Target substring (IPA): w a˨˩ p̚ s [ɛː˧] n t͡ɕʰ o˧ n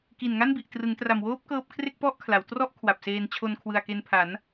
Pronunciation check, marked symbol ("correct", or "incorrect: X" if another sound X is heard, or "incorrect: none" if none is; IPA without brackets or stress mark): incorrect: eː˧